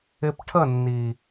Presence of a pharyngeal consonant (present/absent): absent